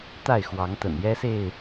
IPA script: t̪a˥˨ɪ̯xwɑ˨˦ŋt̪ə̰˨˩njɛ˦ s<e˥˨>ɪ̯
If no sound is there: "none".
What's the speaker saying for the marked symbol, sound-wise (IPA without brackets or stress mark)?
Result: e˥˨